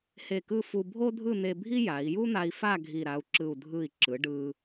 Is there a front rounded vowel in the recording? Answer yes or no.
no